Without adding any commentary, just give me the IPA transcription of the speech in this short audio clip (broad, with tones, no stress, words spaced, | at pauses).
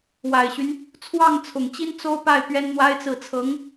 wa˨˩ɪ̯ɕy˦n | t͡sʰwɑ˥˩ŋt͡sʰʊ˨˩ŋt͡ɕi˥n t͡so˥ʊ̯pa˥˩ɪ̯ pɥɛ˥nn̪wa˥ɪ̯t͡sɹ̩˥˩ t͡sʰɤ˧˥ŋ